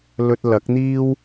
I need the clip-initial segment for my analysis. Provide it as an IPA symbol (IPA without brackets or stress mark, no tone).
l